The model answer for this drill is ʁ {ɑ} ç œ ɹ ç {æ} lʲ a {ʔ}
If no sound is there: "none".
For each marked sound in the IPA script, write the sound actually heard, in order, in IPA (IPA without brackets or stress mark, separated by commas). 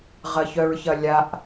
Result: ɐ, ɐ, ʔ